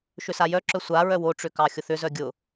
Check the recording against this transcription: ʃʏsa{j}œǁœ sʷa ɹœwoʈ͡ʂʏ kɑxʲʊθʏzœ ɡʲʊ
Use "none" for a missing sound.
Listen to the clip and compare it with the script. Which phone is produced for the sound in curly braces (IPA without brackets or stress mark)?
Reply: j